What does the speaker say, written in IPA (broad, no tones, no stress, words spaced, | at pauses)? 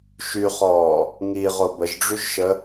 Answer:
ʃyχɔː | ŋiʁo bəʒɖ͡ʐyʒʃə